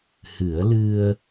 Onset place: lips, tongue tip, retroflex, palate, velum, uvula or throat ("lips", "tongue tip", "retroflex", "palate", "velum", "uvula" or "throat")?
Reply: throat